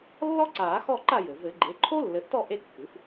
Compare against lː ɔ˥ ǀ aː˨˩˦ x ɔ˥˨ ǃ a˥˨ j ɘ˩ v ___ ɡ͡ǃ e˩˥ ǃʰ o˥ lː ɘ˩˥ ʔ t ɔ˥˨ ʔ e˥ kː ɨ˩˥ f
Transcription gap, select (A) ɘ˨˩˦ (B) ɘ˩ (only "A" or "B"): A